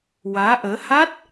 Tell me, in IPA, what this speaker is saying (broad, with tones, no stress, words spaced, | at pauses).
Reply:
waː˧˥ʔəː˧˥ ha˦˥t̚